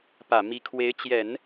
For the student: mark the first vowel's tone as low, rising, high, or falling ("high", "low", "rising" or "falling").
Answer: low